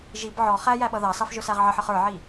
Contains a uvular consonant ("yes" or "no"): yes